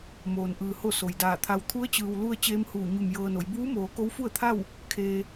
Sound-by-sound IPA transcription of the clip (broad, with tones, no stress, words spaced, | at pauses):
moː˩nʔɯː˩ ho˥˨so˩jdaː˧˩t̪ʰa˧w t̪ʰu˧˥ə̯t͡ɕɯː˩wlu˧ə̯ t͡ɕeː˧˥mhuː˧˩ɲu˧˩m jɤː˧no˩˧j buː˧˥moː˩˧ ko˧˥wfu˥˨ə̯t̪ʰa˥˨w | kʰeː˧